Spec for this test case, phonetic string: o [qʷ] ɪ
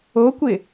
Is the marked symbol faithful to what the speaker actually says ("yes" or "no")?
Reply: no